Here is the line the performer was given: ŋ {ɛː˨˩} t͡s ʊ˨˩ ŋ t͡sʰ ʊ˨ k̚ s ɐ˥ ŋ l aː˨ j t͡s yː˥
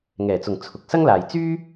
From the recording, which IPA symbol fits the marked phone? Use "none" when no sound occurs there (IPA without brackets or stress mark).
ɛː˨˩